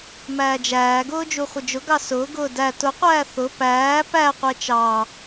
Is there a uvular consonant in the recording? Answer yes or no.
yes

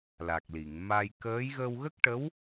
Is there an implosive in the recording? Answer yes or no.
no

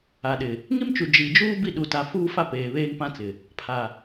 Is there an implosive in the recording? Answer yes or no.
yes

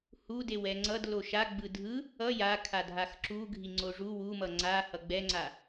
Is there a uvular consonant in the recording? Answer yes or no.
no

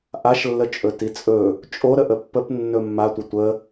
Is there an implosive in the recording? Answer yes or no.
no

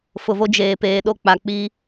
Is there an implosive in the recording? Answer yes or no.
yes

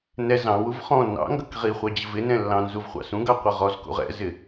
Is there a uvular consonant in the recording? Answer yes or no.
yes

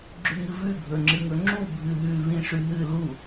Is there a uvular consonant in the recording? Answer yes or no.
no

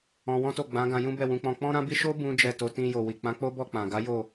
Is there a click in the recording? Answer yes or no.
no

